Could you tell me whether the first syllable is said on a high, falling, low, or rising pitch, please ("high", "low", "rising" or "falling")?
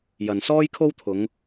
low